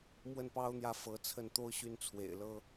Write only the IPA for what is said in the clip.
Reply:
m w ə˥˩ n p ɑ˥ ʊ̯ n̪ j ä˥˩ f ɤ˧˥ t͡sʰ ə˥˩ n t̪ o˥ ʊ̯ ɕ y˥˩ n t͡sʰ w ḛ˨˩ ɪ̯ l ɤ˥

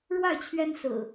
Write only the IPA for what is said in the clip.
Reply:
ɻ w a˥˨ ɪ̯ t͡ɕʰ ɥ ɛ˦ n s ɹ̩˨˩

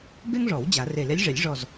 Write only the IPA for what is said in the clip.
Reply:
b e˥ ŋ ʐ ɔ˨˩˦ w d͡ʑ a˨˩˦ r e˧˩ l e˧˥ lʲ ʐ e˨˩˦ lʲ ʐ ɔ˧˩ z

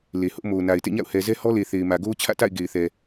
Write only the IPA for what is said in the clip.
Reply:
l e˨ h ʊ˦ ʔ m o˨ ʊ̯ n a˨ ɪ̯ t ḛ˦˨ ɲ a̰˦˨ ʊ̯ h ɛ˨ z ɛ˦ h ɔ˦ l e˨ θ e˨ ɪ̯ m ä˨ ɡ o˦ ʊ̯ t͡ɕʰ ä̰˦˨ t a̰˦˨ ɪ̯ ɡ e˨ ɪ̯ θ ɛ˨

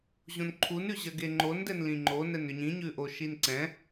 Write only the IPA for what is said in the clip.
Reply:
ʑ õ n ǃʰ u n ʉ ʑ ɜ ɡ e ŋ͡ǃ o n d ɛ n l ĩ ŋ͡ǃ o n ɛ n ʏ ɲ ĩ ɲ ʉ ʔ o ʃ i n ǀ ɛ̃

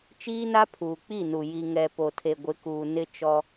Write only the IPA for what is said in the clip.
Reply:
t͡ʃ iː˦ n a˦ pʰ uː˨ k͡p i˦˨ n u˨ j i˨ ŋ ɛ˨ p o˨ tʰ e˨ ɡʷ ɪ˨˦ k uː˨ n ɪ˦ t͡ʃ ɔ˦

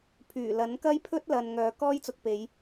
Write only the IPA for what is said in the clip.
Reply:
pʰ yː˨˩ l ɐ˨˥ n k ɐ˥ j pʰ ɵ˥ t̚ l ɐ˨ n ŋ œː˨ k ɔː˥ j t͡s ʊ˧ k̚ p e˨˧ j

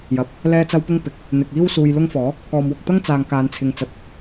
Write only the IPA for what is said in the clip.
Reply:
j ɐ˨ p̚ | l ɛː˥ t͡s ɐ˥ w p ʊ˥ ŋ p ɪ˨˥ k̚ | n̪ ɪ˨ k̚ iː˥ w s uː˧ j l ʊ˥ ŋ f ɔː˨˥ | k ɔː˨ m w ʊ˧ k̚ t̪ ɐ˥ ŋ t͡s aː˨ ŋ k aː˨˧ n t͡sʰ ɪ˨˧ ŋ t͡s ɐ˨ t̚

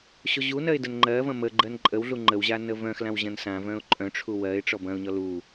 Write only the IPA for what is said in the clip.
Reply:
ɕ o ʑ u n ɜ ɪ̯ d ə n ŋ͡ǃ ɜ v ɐ̃ m ə ɡ͡ǃ ɜ n ǃʼ ə w ɮ u ŋ͡ǃ ə w ʑ a n ə v œ̃ x l ã w ʑ ɐ̃ n s ã v œ̃ ʊ̯ ǃʼ œ̃ ʈ͡ʂʰ u w ɜ ɪ̯ ʈ͡ʂ ɔ b ɐ̃ ʊ̯ ɲ ɔ l u

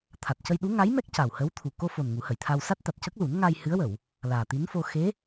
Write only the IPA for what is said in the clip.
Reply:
t̪ʰ a˨˩ t̚ c ə˧ j ɗ u˧˥ ŋ a˧˥ j m ɛ˦˥ k̚ c a˨˩ w h ə˧˥ w t̪ʰ u˨˩ k o˧ f o˨˩ n ŋ u˨˩˦ h ə˨˩˨ j t̪ʰ a˧ w s a˦˥ t̚ t̪ a˨˩ t̚ c ə˦˥ k̚ l u˨˩˦ n ŋ a˧ j h ɨ˧˥ ə̯ w ə˨˩˨ w | l aː˨˩ t̪ i˧˥ n f o˧ x e˧˥

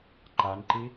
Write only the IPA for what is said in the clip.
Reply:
ǃ a n ǃ i

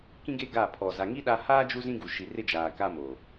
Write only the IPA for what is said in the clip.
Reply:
k ĩ˦ ɡ e˦ ɡ a˦˨ pʰ ɔ˨ z a˨ ŋ i˦ ɗ a˦ h aː˦ d͡ʒ u˦ z ĩ˦ ɡ u˨ ʃ i˨ r ɪ˦ d͡ʒ aː˨ k a˦ m o˨

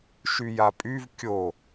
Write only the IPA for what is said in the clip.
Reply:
ʃ y j a pʼ y v kʲ o

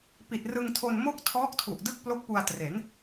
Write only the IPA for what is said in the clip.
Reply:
p i˨˩ t̚ r ɯ˧ ŋ tʰ o˧ n m o˥˩ k̚ tʰ ɔː˦˥ k̚ tʰ u˨˩ ʔ d ɯ˥˩ k̚ p l o˦˥ k̚ p u˧ a̯ t r e˩˦ n

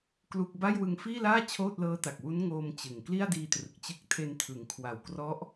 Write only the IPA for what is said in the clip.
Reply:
k l u˥˩ k̚ b a˥˩ j w ɯ˧ ŋ f iː˥˩ l aː˥˩ t͡ɕʰ oː˥˩ t̚ l ɤː˦˥ t a˨˩ k̚ w u˦˥ n ŋ oː˧ m t͡ɕ ɯ˨˩ ŋ k l i˥˩ a̯ d iː˧ t r ɯ˨˩ k̚ t͡ɕ ɯ˦˥ k̚ tʰ e˧ n tʰ ɯ˩˦ ŋ kʰ w a˨˩ w k r ɔ˦˥ ʔ

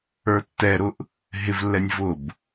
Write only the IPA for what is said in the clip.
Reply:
ə˞ tː ɛ ɾ ʊ ʔ | ɦ ɪ v lː ɛ nʲ v ʊ b

